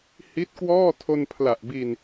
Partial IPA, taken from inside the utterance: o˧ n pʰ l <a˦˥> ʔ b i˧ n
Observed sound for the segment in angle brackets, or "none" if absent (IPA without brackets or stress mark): a˨˩